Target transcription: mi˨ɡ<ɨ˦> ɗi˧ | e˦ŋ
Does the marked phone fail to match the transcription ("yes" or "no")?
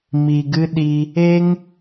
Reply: no